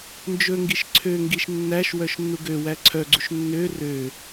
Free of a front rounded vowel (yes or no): no